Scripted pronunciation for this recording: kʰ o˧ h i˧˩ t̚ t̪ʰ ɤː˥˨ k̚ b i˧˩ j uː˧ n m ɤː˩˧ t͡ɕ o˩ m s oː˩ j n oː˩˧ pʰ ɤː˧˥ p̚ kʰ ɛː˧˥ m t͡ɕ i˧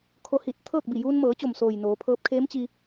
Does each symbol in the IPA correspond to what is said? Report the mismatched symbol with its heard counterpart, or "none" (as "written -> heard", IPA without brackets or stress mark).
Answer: ɛː˧˥ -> eː˧˥